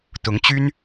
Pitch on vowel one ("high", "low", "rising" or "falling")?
rising